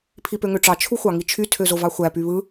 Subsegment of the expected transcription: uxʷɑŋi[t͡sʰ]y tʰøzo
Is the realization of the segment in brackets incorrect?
yes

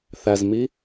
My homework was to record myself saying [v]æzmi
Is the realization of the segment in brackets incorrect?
yes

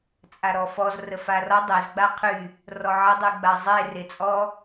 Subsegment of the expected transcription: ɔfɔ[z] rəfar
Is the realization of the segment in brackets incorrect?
no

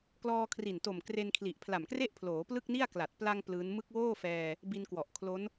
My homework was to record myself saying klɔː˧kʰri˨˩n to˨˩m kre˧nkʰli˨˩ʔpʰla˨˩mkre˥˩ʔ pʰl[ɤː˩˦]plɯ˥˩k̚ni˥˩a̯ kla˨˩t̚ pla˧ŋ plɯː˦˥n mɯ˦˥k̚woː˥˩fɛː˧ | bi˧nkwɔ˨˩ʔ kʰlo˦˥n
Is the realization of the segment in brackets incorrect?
yes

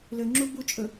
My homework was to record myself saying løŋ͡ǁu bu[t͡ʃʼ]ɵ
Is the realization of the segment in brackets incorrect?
no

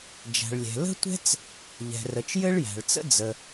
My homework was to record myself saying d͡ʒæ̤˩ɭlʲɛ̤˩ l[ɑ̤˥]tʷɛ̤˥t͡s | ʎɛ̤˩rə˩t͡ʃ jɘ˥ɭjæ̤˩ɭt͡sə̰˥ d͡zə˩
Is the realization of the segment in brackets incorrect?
yes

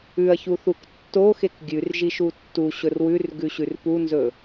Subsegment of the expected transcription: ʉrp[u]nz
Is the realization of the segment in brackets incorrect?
no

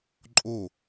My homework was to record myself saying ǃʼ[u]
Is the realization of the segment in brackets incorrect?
yes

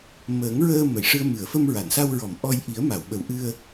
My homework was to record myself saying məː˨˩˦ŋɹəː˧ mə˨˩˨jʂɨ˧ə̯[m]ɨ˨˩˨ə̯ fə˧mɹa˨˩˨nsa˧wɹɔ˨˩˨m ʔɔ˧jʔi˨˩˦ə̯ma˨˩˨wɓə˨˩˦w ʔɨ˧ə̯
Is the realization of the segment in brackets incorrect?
no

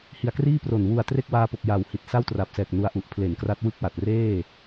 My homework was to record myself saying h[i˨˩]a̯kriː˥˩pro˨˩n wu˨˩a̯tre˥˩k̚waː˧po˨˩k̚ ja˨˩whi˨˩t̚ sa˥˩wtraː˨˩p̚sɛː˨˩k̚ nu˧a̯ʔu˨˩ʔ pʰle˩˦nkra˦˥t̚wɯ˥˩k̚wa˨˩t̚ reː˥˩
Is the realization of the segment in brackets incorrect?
no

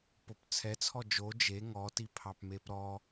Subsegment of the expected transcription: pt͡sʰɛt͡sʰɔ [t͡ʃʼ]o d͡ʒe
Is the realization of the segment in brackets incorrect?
yes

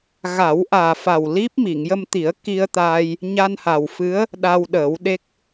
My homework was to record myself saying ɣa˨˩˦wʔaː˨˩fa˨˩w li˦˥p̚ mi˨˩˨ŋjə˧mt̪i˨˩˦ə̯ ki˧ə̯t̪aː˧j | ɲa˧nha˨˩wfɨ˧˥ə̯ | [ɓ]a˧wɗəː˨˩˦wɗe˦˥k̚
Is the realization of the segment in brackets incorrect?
yes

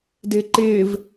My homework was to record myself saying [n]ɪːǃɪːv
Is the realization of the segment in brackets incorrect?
yes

